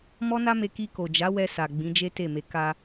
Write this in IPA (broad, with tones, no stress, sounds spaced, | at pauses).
m ɔ˦ n a˦ m e˧ k i˧ k o˨ d͡ʒ a˨˦ w ɛ˧ s a˨ ɡ͡b ĩ˨˦ d͡ʒ e˦ t e˦˨ m e˨˦ k a˧